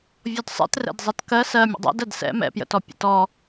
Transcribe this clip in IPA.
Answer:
vʲ ɔ d sˤ ɛ̰ t r ɛ̰ d zˤ ɜ t k ɜ s ɜ mʲ ə̰ dˤ ɛ̰ d ɜ d s ɛ̰ m ɛ̰ p j ə̰ t ɔ pʲ ə̰ t ɔ

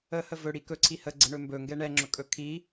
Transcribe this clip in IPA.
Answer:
ə h ə v ɵ ɽ i k ɵ ǀʰ i h ə ɡ͡ǀ ə ɳ ɵ m b ɵ ŋ ɡ ɛ ɳ ɛ ŋ͡ǁ ɵ kʼ ɵ kʰ i

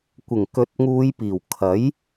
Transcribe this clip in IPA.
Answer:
kʷ ɪ˨˩ ŋ k ɵ˨˥ t̚ ŋ uː˨˧ j p iː˨˩ w kʰ ɐ˨˥ j

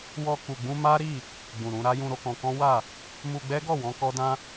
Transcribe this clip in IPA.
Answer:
w ɔ˧ k u˨ ɡ͡b ũ˧ m a˦ ɾ i˦˨ | ɡ͡b ũ˨ ɾ ũ˧ ɾ a˦ j ũ˧ ɾ o˧ k ɔ̃˧ k ɔ̃˦ w a˦˨ | m u˧ ɡ͡b ɛ˦ ɡ ɔ˦˨ w ɔ̃˧ k ɔ˦ d ã˦

